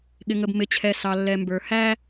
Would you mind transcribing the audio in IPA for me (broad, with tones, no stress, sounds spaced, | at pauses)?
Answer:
ɠ ɪ˨ ŋ ə˨ b m ɪ˨ t͡ɕʰ ɛ˨ s ɑ˨ lː ɛ˨ m b ə˞˨ h æ˦